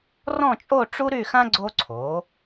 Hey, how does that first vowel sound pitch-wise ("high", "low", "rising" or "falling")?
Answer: falling